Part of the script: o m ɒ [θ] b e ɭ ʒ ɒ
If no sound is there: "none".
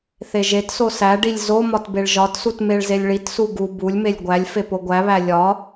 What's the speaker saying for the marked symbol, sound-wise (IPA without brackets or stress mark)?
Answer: t